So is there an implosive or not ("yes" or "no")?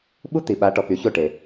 yes